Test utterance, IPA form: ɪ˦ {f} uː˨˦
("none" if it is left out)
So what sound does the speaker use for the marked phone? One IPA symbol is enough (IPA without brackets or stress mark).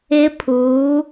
pʰ